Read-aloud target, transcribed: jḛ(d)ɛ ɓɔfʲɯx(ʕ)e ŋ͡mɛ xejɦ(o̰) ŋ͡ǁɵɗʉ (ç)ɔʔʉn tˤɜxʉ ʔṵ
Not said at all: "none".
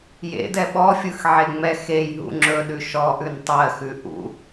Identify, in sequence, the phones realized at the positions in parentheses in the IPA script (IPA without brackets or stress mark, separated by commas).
d, ʕ, ṵ, ʃ